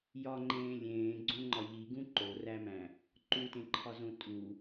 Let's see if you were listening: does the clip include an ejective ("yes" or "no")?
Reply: yes